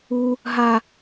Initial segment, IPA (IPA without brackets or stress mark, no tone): u